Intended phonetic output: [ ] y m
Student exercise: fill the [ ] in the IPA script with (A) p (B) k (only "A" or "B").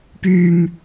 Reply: A